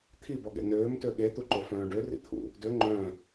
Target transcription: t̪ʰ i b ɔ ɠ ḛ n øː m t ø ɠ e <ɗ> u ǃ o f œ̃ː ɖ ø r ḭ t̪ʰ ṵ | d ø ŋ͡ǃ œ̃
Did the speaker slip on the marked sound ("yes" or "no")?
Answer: yes